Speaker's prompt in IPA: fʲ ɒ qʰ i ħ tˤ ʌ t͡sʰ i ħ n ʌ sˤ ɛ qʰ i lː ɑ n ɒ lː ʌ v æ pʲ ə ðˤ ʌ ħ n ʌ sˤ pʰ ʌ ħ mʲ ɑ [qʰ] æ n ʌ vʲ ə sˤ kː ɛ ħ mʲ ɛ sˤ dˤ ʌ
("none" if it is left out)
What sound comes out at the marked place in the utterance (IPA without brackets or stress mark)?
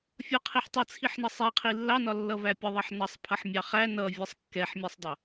χ